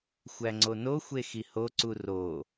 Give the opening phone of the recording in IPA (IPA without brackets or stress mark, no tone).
xʷ